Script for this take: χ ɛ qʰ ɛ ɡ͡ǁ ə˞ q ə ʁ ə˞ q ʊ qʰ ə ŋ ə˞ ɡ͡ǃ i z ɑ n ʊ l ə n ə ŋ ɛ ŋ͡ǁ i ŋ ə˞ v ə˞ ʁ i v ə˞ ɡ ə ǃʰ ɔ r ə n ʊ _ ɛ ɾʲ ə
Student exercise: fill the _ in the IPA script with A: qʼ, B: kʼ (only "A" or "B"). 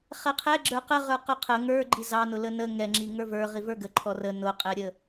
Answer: A